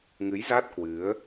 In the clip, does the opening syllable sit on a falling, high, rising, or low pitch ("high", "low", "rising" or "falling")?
rising